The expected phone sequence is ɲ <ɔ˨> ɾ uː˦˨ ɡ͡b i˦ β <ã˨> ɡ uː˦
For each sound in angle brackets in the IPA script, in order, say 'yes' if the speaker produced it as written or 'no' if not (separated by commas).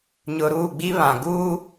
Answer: no, yes